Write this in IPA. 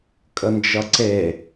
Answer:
kʼ ə n d͡ʒ ʌ ǀ e

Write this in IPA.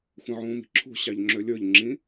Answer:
xʷ ə̃ ʕ ũː m i̤ ǁʰ ṳ ɕ ɑ ʎ ŋ͡ǁ ø lʲ ə˞ ʎ ŋ͡ǁ ĩ

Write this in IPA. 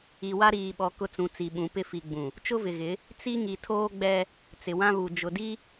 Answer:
i˨ w a˦ ɾ iː˨ ɓ ɔ˨ k ʊ˦ t͡s ũ˨ t͡s i˨ ɓ ũ˨˦ p ɪ˦˨ f i˨ ɡ͡b ũ˨ | t͡ʃ ʊ˦ v ɪ˨ ɣ ɪ˨˦ | t͡s i˦ ŋ i˨ tʰ oː˦ ɡ͡b ɛ˦ | t͡s ɪ˨ w ã˦ β u˨ d͡ʒ ʊ˨ d i˦

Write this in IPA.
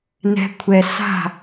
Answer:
n ɛ̤˦ kʷʰ ɛ˧ s a̤˦˨

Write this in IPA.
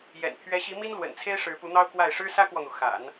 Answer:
j ɛ̰˨˩ n t̪ʰ ɥ ɛ˧˥ ɕ i˧˥ m i˥ n l w ə̰˨˩ n t͡sʰ e˥ ɪ̯ ʂ ɻ̩˧˥ p u˧˥ n̪ ɑ˥ ʊ̯ k w a˥˩ ɪ̯ ʂ ɻ̩˥ s ä˥ k w ɔ˨ n̪ u˩ x a̰˨˩˦ n

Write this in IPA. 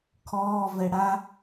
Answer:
kʰ ɔː v ɛ ɽ a

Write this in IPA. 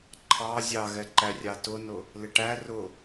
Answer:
ǃʰ ɑ zʲ ɑ ɣ ɛ ǃ æ rʲ ɑ t ʊ n ʊ | l ɪ ʈ æ r ʊ

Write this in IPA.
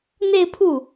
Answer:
n̪ e˥˧ ɪ̯ pʰ u˥˩

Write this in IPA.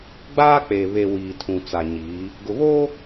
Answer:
ɡ͡b aː˦ k͡p e˨ β e˨ w iː˨ tʰ ũ˨ t͡s a˨ ɲ iː˨˦ | ɡ ʊ˨ β oː˦

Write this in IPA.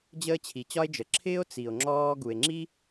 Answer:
d͡ʑ əː˥ t͡ɕʰ i˩ t͡ɕ ɒ˥ e̯ d͡ʒ ə˩ ǁʰ ɪː˥ o̯ t͡s i˩ o̯ ŋ͡ǁ ɔː˥ ɡ u˩ e̯ ŋ͡ǁ i˥

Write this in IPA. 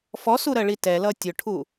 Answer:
f ɔ s u ɾ ɜ ɭ i t ɛ l ʌ tʲ ʊ ʈʰ u

